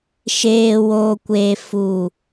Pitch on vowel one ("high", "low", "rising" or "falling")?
low